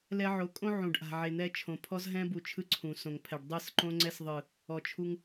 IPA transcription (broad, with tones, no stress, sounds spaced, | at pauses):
l ɛ˦ ʕ o˨˦ kʼ õ˦ ʕ ũ˨ ɖ ʔ a̤˨ ʕ e˨ n̪ ɛ˧ t͡ʃʰ õ˨ pʰ ɔ˦ z ɦ ɛ̃˦ b u˨ t͡ʃʰ ɯ˧ ǀʰ ũ˨ s õ˨ ŋ pʰ ɛ˨ ɖ dˤ ɯ˦˨ s ǃ õ˦ ŋ͡ǀ ɛ˧ s ðˤ ɯ˨ | ɔ˨ t͡ʃʰ u˧ ŋ